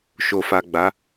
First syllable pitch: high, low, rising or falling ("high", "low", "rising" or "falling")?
low